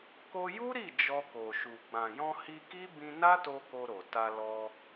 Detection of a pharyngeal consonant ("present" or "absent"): absent